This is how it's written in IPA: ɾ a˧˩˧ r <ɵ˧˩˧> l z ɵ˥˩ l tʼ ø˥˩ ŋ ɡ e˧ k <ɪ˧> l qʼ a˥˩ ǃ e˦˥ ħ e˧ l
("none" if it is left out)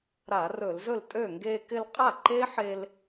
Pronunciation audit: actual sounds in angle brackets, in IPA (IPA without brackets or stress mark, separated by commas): ɵ˧˩˧, ɪ˧